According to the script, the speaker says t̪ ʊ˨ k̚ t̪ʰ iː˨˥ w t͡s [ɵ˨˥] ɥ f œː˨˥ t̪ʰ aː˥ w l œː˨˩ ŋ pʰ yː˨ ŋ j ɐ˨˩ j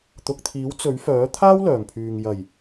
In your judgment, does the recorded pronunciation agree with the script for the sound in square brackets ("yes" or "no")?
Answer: yes